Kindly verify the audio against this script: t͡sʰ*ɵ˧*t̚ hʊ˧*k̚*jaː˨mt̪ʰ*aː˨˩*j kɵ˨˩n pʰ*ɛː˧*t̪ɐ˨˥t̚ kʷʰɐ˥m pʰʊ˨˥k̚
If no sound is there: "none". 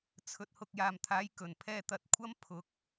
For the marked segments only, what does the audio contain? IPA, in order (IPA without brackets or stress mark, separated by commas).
ɵ˧, k̚, aː˨˧, ɛː˧